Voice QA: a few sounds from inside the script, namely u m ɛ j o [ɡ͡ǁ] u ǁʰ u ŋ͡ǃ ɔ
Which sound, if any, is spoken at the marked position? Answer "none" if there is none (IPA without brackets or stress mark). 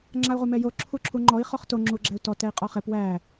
ǁʰ